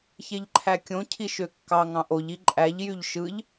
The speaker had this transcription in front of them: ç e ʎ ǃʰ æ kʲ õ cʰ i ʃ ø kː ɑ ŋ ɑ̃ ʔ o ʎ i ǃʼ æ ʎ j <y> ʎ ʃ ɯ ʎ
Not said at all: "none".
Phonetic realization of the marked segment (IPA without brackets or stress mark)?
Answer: y